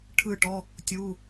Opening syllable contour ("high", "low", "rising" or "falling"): falling